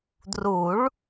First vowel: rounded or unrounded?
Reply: rounded